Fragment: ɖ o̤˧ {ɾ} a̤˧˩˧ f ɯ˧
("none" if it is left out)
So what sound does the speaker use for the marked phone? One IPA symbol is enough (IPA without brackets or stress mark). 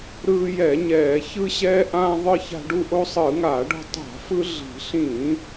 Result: tˤ